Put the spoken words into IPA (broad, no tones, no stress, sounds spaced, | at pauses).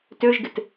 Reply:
t ø ʒ ɡ ɪ t